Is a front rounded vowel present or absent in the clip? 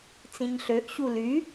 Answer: present